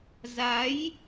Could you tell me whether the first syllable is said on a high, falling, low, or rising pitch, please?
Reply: rising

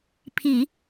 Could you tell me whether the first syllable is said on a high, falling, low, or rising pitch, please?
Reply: low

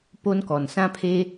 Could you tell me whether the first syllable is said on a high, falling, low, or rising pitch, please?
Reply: high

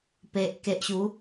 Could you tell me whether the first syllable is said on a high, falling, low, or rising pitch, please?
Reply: low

